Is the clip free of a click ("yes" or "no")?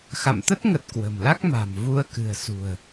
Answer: yes